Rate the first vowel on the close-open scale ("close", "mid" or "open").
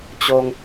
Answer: mid